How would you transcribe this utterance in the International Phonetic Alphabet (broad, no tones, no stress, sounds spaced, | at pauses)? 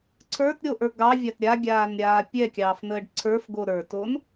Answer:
ǀʰ ə˞ t ɾʲ o ʔ ə˞ ɡ ɑ vʲ a t ɾʲ a ɡʲ aː n ɾʲ aː pʲ ɛ kʲ ɑː f n̪ əː ɖ ǀʰ ə˞ f ɡ o ɾ ə˞ t o n